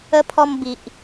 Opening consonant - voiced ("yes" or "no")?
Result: no